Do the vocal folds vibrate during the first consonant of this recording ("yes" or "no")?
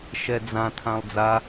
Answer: no